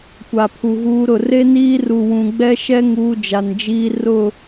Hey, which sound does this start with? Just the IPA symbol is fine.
kʷ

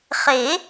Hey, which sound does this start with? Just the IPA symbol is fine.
χ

